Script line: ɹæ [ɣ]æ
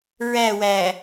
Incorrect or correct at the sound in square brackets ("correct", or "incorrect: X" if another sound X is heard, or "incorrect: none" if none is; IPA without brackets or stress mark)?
incorrect: w